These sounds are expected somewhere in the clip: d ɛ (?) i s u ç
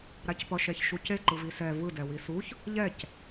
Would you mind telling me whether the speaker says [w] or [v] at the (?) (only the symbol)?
w